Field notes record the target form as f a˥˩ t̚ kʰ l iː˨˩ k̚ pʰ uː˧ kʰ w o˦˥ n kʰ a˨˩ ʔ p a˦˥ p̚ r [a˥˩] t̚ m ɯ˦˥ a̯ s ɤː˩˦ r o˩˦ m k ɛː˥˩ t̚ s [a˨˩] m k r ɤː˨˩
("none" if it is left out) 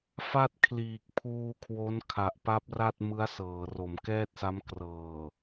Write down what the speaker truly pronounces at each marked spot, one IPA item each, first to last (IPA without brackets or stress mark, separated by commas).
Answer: a˥˩, a˦˥